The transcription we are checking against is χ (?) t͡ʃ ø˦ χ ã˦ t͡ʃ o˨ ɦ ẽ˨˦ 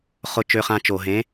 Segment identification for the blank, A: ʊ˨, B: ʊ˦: B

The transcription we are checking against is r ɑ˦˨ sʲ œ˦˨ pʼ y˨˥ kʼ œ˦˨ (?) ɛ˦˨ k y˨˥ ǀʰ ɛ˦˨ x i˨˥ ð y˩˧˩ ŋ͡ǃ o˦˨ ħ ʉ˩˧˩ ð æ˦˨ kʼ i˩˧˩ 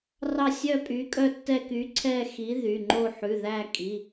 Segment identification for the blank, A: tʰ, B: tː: B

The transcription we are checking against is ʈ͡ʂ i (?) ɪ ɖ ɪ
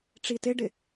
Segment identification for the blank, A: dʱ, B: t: B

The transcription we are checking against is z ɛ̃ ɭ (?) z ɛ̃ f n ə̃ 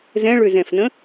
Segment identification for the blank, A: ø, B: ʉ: A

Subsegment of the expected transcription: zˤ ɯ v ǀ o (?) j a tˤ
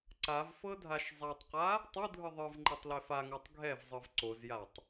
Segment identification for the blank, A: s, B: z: B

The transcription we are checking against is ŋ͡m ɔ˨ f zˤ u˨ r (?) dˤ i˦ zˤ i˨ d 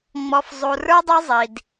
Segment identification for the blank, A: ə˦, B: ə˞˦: B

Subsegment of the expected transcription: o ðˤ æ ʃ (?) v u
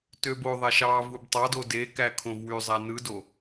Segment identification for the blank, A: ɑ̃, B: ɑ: B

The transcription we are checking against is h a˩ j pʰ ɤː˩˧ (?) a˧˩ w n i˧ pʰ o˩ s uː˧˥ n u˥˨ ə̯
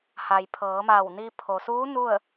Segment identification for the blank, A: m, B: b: A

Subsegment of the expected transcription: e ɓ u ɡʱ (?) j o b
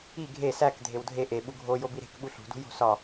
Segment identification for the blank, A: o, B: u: A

